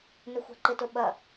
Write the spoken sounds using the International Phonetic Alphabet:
n ʏ xʷ a̤ ǃ ɪ t ʊ ɓ ɐ

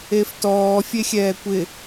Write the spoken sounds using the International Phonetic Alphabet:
e f t ɔː fʲ e xʲ ɛː kʷ ɪ

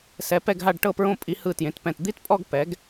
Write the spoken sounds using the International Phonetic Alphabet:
s ɛ˧˥ p ɛ˥˧ ɡ ɦ a˥˧ ɖ ʈ ɤ˥˧ p ɹ õ˥˧ pʼ i˧˥ h ɯ˥˧ t j ẽ˧˥ t p ɛ̃˥˧ t d̪ i˥˧ t pʼ ɔ˥˧ ɡ p ɛ˧˥ ɡ

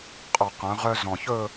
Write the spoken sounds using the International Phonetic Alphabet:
qʼ ɔ˨˩ q œ̃˩˧ ʁ œ˧ z ɔ̃˨˩ ç ɵ˥˧

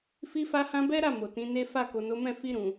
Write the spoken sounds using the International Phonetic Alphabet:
f i˦ f a˦ h ã˦ b ɛ˦ ɾ a˦˨ m o˨ t ĩ˨˦ n e˦ f a˦˨ k o˨ n o˨˦ m ɛ̃˦˨ f i˧ ɾ ũ˨

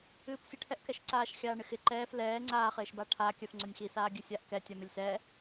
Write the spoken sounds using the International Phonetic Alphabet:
ɨː p sʲ ɨ ʈʰ ɛ ʔ k ɛ ʃ ǀ aː ʃ xʲ aː ɳ ɪ x ɪ ǃ ɛː f l ɛː ŋ͡ǀ aː χ ɪː ʃ b a ʈʰ aː kʲ œ f ŋ͡ǀ œ nʲ x i s aː ɡʲ ɨ sʲ a ʔ k ɛ tʲ a m ɪ lʲ s ɛː

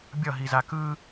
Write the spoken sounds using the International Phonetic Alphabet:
bʲ ʌ ɦ i z a k ɯ

